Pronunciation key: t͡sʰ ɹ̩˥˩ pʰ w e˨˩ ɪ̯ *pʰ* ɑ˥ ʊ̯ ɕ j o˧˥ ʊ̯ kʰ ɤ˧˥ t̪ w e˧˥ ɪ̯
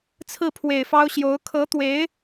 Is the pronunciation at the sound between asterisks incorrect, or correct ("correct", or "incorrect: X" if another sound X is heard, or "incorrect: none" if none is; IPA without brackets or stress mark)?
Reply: incorrect: f